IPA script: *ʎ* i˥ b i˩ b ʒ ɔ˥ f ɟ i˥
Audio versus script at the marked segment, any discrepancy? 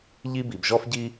no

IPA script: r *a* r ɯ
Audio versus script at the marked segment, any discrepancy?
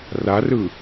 no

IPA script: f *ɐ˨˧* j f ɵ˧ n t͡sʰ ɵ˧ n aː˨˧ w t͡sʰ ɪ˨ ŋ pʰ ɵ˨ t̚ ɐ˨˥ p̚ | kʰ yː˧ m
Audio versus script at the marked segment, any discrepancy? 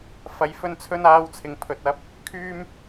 no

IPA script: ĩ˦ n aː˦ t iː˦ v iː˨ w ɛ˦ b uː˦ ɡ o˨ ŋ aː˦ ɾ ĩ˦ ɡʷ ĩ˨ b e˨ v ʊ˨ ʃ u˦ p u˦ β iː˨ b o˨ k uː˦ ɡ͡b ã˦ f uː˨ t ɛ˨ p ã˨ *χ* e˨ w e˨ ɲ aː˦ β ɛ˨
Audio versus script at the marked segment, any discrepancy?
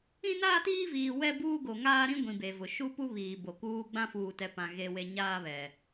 yes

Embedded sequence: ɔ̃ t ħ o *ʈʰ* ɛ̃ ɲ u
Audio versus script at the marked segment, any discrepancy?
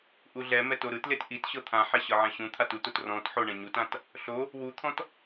yes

